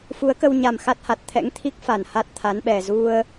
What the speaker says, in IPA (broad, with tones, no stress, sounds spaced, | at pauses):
f u˨˦ ə̯ k ə˧ w ɲ a˨˩ m x a˦˥ t̚ h a˨˩ t̚ t̪ʰ ɛ̰˧˥ ŋ t̪ʰ i˦˥ k̚ f a˧˩ n h a˦˥ t̚ t̪ʰ a˨˦ n ɓ ɛ˨˩ z u˧ ə̯